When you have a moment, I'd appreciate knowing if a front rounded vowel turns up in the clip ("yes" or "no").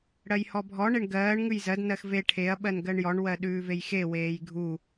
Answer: no